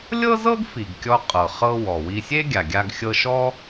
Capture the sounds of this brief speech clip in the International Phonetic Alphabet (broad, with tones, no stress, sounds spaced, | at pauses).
lʲ ɤ˥ z ɤ˥ ɡ f i˩ ɡ kʲ ɔ˧ qʼ ɤ˩ χ ɤ˧ w ɔ˩ w i˧ sʲ e˥ ɡʲ a˩ ɡʲ a˧ ɡ xʲ ɤ˧ ʃ ɔ˥